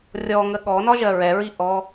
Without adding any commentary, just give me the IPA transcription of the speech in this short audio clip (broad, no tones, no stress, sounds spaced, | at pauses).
rʲ ɔ ŋ ə ɠ ɔ n ɒ ʒ ɜ ɹ ɛ ɹ i ʔ ɔ